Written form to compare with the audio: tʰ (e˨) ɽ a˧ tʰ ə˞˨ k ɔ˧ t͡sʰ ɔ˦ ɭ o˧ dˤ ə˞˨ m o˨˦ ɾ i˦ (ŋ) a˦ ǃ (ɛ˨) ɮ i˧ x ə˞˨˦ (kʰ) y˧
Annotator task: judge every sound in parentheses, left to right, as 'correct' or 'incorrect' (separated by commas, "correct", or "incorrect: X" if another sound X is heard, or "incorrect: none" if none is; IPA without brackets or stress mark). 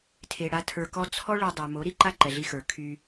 correct, incorrect: ǃ, correct, correct